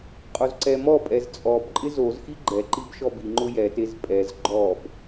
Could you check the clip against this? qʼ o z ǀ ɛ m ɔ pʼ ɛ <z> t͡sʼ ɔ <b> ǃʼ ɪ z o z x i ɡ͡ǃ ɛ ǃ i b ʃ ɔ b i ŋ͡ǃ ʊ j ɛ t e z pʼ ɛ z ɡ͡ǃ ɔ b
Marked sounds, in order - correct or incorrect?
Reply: correct, correct

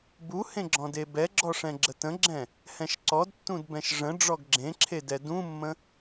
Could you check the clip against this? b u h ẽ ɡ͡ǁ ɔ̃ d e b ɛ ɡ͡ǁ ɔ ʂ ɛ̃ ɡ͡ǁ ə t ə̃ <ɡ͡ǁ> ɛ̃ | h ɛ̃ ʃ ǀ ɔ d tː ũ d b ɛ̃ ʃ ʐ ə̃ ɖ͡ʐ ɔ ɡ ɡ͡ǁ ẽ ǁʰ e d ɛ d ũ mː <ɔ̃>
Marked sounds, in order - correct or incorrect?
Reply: correct, incorrect

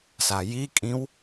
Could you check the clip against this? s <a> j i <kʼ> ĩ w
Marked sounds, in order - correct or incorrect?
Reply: correct, correct

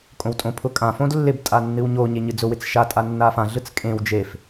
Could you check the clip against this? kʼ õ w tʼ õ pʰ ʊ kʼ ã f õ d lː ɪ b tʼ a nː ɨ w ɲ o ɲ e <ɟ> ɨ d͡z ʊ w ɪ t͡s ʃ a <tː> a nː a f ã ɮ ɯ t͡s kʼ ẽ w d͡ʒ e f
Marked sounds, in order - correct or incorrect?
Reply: incorrect, incorrect

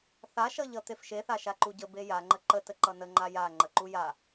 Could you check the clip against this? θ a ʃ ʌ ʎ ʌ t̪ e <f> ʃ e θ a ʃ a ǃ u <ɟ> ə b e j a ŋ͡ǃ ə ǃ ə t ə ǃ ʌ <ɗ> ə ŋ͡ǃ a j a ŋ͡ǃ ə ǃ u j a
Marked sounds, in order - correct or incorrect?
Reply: correct, correct, incorrect

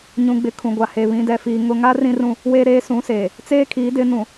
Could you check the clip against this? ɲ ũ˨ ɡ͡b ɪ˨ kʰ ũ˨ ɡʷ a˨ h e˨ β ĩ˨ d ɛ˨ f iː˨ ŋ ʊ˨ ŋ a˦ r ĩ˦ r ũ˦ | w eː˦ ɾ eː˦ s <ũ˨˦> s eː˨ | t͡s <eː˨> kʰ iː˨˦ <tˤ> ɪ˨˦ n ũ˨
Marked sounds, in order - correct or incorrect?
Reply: correct, incorrect, incorrect

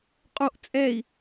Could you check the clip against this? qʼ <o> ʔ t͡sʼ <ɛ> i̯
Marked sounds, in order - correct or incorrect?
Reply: correct, correct

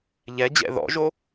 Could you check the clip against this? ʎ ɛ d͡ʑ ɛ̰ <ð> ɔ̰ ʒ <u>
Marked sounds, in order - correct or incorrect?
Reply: correct, incorrect

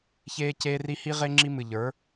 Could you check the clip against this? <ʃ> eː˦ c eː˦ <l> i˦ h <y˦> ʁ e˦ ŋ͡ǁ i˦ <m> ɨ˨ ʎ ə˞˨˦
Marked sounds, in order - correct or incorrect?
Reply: incorrect, incorrect, incorrect, correct

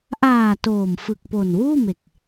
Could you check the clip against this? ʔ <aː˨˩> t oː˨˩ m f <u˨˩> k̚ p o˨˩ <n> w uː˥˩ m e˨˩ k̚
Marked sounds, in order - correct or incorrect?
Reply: correct, incorrect, correct

